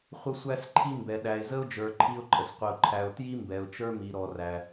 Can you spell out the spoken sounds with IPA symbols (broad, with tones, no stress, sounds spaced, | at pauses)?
χʷ ə˧ sʷ æ˧ s ǃʰ i˧ m b ɛ˩ ɗ æ˩ ɪ̯ z ə˧ ʊ̯ d͡ʒ ə˞˩ ǃʰ i˧ ʊ̯ ǃʼ ə˩ s qʷ ɪ˩ ʊ̯ ǃʰ æ˩ ʊ̯ t j i˥ m b ɛ˩ ʊ̯ t͡ʃ ə˞˥ m i˩ ɾ ɔ˩ r æ˩